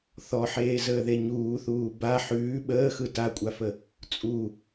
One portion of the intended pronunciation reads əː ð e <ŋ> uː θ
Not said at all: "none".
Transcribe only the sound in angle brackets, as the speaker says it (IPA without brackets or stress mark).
ɲ